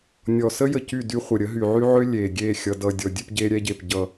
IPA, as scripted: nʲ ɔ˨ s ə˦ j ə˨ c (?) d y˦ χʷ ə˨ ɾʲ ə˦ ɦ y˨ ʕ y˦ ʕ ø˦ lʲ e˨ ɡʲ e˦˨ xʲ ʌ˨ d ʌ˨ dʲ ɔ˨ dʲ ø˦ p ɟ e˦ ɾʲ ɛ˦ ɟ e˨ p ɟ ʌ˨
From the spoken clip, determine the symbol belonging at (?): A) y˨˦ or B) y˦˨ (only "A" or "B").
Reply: B